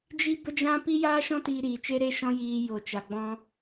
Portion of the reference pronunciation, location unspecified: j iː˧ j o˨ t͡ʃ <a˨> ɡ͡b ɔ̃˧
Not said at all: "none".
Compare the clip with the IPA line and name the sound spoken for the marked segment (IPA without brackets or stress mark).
a˨